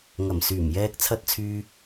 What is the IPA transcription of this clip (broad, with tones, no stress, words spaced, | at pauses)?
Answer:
ŋɐ˨˩msyː˨˩m jɛː˨k̚t͡sʰɐ˨˥t̚t͡sʰyː˨